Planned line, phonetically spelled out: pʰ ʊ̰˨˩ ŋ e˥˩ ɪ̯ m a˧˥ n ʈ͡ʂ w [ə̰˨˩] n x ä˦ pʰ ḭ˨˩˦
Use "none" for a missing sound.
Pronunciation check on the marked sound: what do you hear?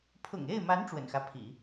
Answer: ə̰˨˩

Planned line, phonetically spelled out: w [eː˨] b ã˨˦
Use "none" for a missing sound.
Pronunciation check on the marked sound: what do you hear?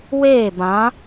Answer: eː˦˨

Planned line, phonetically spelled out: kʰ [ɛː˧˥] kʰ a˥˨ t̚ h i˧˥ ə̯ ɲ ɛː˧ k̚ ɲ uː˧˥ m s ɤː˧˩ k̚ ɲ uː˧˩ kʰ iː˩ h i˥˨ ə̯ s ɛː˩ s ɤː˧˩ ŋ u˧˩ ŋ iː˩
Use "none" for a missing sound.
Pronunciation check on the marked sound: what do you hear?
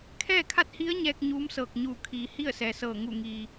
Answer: ɛː˥˨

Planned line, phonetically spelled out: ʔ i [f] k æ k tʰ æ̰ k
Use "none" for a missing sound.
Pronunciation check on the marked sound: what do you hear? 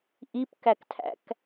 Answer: p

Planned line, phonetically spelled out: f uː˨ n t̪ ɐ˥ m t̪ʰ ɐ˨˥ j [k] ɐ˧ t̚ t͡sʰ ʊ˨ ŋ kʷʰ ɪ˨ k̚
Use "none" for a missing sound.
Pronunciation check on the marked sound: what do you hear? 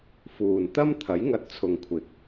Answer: ŋ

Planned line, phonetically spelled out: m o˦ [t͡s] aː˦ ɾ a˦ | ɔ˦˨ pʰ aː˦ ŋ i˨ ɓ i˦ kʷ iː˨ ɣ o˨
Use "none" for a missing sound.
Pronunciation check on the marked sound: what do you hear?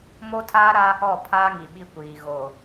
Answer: tʰ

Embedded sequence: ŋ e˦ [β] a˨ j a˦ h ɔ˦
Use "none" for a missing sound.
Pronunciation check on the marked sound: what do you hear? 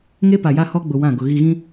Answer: p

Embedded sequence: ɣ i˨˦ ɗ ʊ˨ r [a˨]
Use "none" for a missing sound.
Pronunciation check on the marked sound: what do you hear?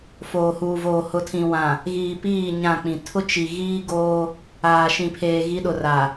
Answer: a˨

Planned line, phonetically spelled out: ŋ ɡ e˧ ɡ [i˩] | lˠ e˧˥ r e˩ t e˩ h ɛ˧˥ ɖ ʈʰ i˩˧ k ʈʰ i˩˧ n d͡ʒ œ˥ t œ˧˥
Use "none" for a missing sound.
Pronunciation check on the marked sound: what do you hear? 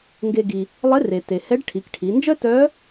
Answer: i˩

